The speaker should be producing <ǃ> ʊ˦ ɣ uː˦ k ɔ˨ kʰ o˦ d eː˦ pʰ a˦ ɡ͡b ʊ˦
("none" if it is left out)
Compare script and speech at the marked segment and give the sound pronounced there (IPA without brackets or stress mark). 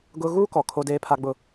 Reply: ɡ